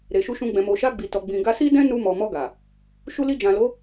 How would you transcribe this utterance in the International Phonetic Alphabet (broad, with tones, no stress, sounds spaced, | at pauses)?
ɾ e˨ ʃ u˧ ʃ ũ˧ ɡ͡b ɛ̃˨ m o˨ ʃ a˧ ɡ͡b i˨ t ɔ˨ ɡ͡b ĩ˨ ɡ a˧ s i˦ d ɛ̃˦ n u˧ m ɔ˨ m ɔ˧ ɡ a˨ | ʃ u˧ l i˧ d͡ʒ ã˨ l o˨˦